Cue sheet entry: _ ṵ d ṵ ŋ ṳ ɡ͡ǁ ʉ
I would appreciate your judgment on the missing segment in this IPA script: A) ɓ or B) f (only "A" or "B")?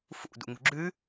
B